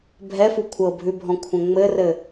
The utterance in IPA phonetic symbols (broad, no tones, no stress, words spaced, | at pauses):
bʱɛfu kʷʰɤbʱʉbʱɔ̃ kʷʰə̃ŋ͡mɘrɘ